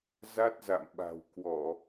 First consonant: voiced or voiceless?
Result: voiced